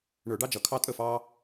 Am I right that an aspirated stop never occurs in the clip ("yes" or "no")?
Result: no